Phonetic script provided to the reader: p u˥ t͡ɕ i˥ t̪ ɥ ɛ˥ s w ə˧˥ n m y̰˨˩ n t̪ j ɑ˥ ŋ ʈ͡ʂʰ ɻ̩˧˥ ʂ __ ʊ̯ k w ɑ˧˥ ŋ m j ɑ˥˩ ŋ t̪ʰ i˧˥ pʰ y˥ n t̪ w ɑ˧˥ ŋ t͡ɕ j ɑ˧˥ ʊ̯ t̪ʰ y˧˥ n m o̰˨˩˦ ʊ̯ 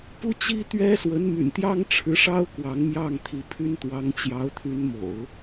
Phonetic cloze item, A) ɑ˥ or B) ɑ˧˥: A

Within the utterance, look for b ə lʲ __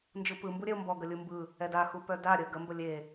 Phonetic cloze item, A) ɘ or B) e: B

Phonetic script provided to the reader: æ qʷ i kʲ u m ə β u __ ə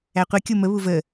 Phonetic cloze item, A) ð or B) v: B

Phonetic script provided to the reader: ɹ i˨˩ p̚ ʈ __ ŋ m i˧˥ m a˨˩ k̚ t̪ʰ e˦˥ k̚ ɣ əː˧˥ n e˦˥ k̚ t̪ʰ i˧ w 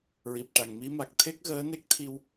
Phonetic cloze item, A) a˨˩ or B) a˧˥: A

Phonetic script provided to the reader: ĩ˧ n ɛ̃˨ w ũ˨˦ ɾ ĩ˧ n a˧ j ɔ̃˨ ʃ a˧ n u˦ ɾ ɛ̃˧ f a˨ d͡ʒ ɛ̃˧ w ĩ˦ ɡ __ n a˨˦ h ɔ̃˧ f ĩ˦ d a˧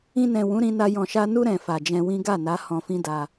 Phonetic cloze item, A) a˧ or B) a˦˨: B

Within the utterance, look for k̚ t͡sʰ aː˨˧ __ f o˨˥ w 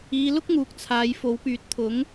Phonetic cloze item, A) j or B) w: A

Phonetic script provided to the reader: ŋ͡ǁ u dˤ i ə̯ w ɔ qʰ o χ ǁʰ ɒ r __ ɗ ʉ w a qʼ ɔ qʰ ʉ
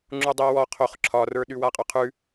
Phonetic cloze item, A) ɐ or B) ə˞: B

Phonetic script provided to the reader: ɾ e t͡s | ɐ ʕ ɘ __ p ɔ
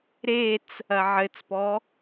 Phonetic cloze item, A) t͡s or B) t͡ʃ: A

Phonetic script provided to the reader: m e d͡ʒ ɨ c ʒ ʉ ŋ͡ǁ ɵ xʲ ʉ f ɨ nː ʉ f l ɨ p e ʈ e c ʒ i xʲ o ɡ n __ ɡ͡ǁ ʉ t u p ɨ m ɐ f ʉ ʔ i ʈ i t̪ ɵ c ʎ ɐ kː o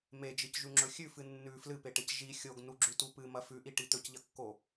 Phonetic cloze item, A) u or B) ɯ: A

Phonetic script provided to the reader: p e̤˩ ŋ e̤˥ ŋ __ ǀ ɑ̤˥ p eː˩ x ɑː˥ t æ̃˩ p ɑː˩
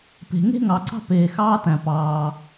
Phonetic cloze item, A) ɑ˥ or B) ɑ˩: B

